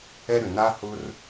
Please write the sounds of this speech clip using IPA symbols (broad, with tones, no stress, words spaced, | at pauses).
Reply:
ɛ˦ɾʏ˨ na˦hʊ˦r